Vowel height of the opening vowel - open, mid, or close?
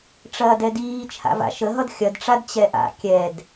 open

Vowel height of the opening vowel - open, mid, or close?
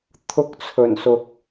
close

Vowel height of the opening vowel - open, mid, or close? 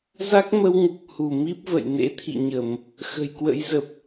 open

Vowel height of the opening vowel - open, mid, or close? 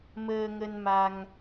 mid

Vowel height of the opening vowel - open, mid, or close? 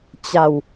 open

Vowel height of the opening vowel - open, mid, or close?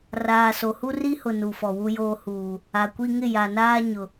open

